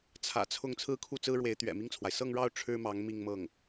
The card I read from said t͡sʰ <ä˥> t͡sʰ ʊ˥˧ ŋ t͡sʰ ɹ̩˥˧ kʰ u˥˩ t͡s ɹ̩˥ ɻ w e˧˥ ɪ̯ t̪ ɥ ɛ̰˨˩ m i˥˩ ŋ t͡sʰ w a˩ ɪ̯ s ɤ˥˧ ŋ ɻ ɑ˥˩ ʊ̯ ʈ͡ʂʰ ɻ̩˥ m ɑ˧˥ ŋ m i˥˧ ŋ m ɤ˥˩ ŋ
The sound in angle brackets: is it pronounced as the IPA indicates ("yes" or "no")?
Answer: no